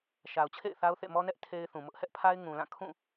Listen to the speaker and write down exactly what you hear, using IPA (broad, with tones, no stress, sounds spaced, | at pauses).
ʃ a˨ ʊ̯ t͡ɕʰ ḛ˦˨ ɪ̯ θ a˦ ʊ̯ θ ḛ˦˨ m ɔ˦ n ɛ˦ ʔ tʰ e˦ ɪ̯ θ ũ˨ m ʊ˦ ʔ h ɛ˦ ʔ pʰ a˦ ɪ̯ ŋ ũ˨ l ã˦˨ kʰ ũ˦˨